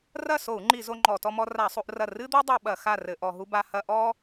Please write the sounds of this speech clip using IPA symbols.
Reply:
r ɐ˥˨ s o˧˩˧ u̯ ŋ͡ǃ i˧˩˧ z o˦ ŋ͡ǃ ɔ˧˩˧ t ɔ˦ m ɔ˦ r a˧˩˧ sˤ u˦ ʔ r ɐ˥˨ r ɨ˦ d̪ o˦ dˤ o˦ ɓ ɐ˧˩˧ x a˥˨ r ɘ˧˩˧ ʔ ɔ˧˩˧ ɦ u˦ b a˦ h ɐ˦ ʔ ɔ˦

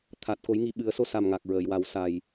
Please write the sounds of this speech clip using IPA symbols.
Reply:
t̪ʰ a˨˩ t̚ k o˨˩˦ j ŋ i˨˩ ɓ ɨ˨˩˦ ə̯ s o˧ s a˨˩ m ŋ a˨˩ k̚ ɹ əː˨˩˨ j w a˨˩˦ w s a˨˩ j

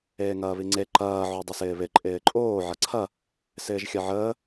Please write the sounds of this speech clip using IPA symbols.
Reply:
eː ŋ ɐː β i ŋ͡ǀ e ǃ ɐː ʕ o dˤ ə s ɪː β ɪ ǃʼ ɪː ǃʼ oː ʕ ɐ ǀʰ ɐ | s ɪː ʒ xʲ ɐ ʕ əː

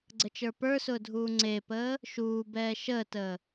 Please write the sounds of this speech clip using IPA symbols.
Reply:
ɡ͡ǀ ə t͡ʃ ə˞ p ə˞ s ʊː dʱ uː ŋ͡ǀ e p əː | ʃ uː b ɛː ʃ əː t əː

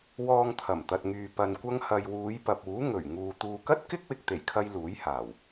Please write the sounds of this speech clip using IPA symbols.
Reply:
w ɔː˧ ŋ t̪ʰ ɐ˨˩ m t̪ ɐ˨ t̚ ŋ yː˨ p ɐ˧ n kʷ ɐ˥ ŋ h ɐ˧ j w uː˨˧ j p ɐ˨ p̚ uː˨˥ ŋ ɵ˨˩ ɥ ŋ uː˨ t̪ uː˨ k ɐ˥ t̚ k ɪ˥ k̚ w ɪ˨ k̚ t̪ e˨˩ j kʰ ɐ˧ j l uː˨˥ j h aː˨˩ w

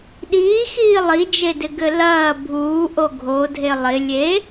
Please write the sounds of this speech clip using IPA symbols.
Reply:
ɗ iː x iː lˠ i d͡ʒ e d ɪ ɡ ɘ l ɐː bʱ uː ʔ o ɡʱ o dʱ e lˠ ɪ lʲ e

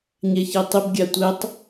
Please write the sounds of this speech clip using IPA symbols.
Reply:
ɲ ɛ ç ɛ tˤ ɪ b ɡʲ a tʷ ɛ tˤ

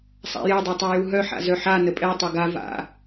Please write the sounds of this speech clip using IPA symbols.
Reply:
sˤ a̰ j ɛ dˤ ø tˤ a j u ɦ œ ħ a̰ z œ ħ a n ə pʼ ɛ tˤ o ɡ a v a̰

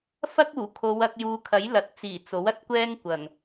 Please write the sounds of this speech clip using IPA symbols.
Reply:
f ɐ˥ k̚ uː˨˩ kʰ o˨˧ w ɐ˧ k̚ j uː˨˧ kʰ ɐ˨˥ j l ɐ˨ t̚ t͡s iː˨˩ t͡s o˨˥ w ɐ˥ t̚ kʷ ɛː˥ ŋ kʷ ɐ˨˩ ŋ

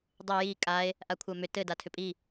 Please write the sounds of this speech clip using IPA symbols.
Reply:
dˤ ʏ j i kʼ a e̯ | ʔ a kʷʰ a m ʏ t ɘ d a tʰ ʏ pʼ i

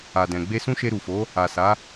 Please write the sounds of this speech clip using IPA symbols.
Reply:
a˨ d ɛ̃˨ ɡ͡b e˧ s ũ˦ ʃ e˧ ɾ u˨ f o˨˦ | a˨ s a˨˦

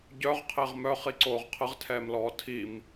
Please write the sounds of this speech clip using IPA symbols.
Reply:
ɟ œ ʁ qʰ e ʁ m œ χ i ǀ oː ʁ qʰ ə ʁ tʰ ɛː m l ɔː tʰ i m

